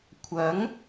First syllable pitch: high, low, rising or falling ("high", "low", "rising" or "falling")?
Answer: rising